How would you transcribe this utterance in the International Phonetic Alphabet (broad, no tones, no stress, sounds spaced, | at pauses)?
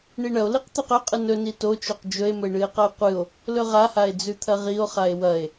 ɳ i ɳ ɐ o̯ l i q t̪ ɵ q ɵ qʼ ɨ n ɵ n i t o t͡ʃ o q d͡ʒ ɵ e̯ m ɵ e̯ ɳ ɨ e̯ q ɐ e̯ qʷ ɨ o̯ | l ɵ ʁ a h a e̯ d͡z ʉ t̪ʰ ɐ ʁ i o̯ χ a e̯ w ɐ e̯